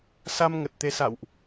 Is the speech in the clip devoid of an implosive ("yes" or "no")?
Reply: yes